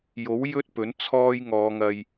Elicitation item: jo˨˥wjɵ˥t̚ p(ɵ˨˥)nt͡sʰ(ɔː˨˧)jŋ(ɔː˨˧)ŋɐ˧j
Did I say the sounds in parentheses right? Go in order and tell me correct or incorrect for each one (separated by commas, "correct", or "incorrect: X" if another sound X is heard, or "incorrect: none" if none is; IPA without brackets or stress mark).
correct, incorrect: ɔː˥, correct